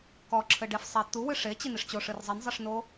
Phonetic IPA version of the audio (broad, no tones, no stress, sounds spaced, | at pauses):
k ɔ ǁʰ ɘ ɖ e f sˤ e t̪ u w ɨ ʂ e t͡ɕ i n i ʂ t͡ɕ o ʂ ɨ r zˤ i n zˤ i ʂ n o